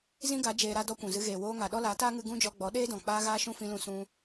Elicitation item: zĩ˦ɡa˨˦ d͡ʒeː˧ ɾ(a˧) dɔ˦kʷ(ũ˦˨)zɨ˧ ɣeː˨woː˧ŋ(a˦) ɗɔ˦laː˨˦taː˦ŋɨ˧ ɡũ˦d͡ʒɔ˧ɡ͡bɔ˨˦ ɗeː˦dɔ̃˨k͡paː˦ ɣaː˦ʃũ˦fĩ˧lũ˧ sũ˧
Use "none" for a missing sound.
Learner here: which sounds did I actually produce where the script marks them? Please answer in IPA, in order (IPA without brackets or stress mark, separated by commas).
a˧, ũ˨, a˨